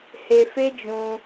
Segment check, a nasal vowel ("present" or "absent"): present